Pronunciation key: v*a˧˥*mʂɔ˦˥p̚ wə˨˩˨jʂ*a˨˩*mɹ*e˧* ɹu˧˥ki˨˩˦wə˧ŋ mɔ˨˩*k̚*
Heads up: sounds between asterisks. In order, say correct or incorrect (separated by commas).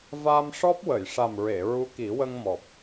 incorrect, correct, incorrect, incorrect